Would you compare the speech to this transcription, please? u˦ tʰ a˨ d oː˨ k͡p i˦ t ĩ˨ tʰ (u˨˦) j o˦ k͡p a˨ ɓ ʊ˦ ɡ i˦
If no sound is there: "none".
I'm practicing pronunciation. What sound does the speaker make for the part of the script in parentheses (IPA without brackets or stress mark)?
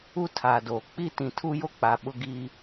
u˦